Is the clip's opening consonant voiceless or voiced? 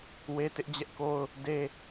voiced